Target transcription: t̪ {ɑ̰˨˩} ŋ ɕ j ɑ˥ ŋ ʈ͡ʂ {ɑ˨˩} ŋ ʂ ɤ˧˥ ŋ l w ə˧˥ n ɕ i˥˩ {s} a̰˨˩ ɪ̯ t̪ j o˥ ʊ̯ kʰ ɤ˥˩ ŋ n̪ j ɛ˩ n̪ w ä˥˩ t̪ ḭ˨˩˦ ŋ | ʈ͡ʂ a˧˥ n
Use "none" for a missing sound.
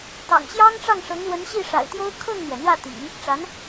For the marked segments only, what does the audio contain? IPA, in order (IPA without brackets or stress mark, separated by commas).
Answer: ɑ̰˨˩, ɑ˥˩, ʂ